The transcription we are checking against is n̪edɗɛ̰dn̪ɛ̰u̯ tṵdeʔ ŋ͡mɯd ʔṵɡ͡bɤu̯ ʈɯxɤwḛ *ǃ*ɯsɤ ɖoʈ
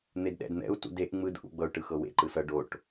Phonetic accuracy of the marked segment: correct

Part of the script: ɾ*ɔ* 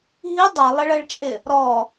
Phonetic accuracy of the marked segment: correct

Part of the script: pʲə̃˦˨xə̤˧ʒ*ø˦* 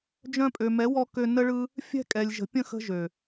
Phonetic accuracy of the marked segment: incorrect: ø˨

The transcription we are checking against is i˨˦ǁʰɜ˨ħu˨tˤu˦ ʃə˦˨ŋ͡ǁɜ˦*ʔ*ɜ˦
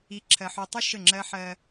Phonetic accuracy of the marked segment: incorrect: ħ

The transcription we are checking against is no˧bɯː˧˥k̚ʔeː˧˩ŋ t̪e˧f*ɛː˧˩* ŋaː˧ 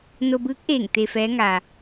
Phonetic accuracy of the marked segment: incorrect: ɛː˧˥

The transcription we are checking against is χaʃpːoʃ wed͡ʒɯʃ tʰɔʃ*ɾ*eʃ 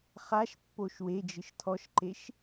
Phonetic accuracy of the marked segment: incorrect: ǃ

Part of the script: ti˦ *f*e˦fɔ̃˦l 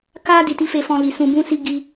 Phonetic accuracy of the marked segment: correct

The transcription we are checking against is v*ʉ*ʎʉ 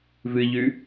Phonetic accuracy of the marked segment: incorrect: ɨ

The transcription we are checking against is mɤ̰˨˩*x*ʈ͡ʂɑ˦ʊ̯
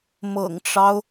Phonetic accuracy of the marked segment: incorrect: ŋ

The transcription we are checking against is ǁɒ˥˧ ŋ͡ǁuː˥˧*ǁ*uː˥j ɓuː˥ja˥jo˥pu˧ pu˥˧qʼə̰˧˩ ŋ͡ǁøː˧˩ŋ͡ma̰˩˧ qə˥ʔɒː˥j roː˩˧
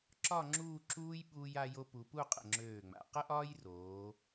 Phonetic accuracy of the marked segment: correct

